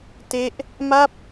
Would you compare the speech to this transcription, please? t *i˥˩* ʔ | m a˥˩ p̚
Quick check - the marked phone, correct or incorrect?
incorrect